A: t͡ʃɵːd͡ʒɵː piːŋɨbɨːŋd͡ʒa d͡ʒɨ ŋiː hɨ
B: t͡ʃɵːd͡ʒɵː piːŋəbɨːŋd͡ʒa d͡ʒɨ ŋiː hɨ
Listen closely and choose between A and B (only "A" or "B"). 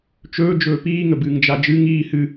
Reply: B